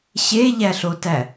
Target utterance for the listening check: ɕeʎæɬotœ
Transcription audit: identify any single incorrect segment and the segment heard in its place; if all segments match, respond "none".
œ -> æ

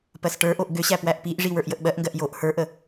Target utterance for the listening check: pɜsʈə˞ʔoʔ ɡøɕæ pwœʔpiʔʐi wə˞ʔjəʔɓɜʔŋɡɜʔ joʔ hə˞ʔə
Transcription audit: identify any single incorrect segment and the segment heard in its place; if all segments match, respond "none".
œ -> æ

